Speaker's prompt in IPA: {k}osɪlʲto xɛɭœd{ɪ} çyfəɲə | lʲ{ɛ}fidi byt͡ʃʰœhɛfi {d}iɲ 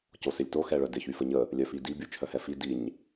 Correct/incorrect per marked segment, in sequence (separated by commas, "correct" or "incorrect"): incorrect, correct, incorrect, correct